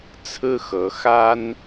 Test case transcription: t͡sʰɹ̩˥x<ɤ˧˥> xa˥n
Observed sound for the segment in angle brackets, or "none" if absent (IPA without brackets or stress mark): ɤ˧˥